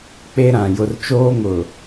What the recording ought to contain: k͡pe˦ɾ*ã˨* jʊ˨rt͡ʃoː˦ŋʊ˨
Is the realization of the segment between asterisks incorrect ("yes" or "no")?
no